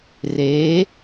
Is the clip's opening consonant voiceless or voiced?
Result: voiced